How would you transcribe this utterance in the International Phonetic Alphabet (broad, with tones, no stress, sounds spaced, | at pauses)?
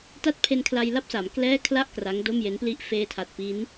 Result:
t a˥˩ t̚ pʰ e˧ n kʰ l a˧ j l a˥˩ p̚ s a˩˦ m k l ɛː˥˩ kʰ l a˥˩ ʔ k r a˦˥ ŋ d o˥˩ m j e˦˥ n p l i˥˩ ʔ f eː˧ tʰ a˨˩ t̚ p i˦˥ n